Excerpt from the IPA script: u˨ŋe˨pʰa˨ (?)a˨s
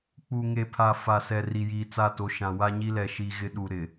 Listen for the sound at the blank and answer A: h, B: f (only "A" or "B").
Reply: B